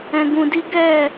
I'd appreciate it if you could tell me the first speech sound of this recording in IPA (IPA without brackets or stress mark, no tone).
ɛ̃